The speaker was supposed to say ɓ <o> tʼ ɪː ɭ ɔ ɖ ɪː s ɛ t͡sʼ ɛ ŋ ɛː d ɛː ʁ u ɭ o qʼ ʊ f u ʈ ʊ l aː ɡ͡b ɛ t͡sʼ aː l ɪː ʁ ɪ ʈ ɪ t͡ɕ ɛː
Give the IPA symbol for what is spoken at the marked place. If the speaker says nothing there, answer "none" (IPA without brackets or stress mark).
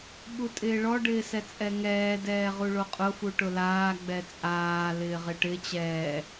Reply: u